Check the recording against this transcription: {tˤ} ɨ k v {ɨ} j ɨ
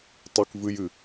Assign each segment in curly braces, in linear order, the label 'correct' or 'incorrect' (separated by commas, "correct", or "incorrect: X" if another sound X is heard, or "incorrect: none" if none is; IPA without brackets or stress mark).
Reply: correct, correct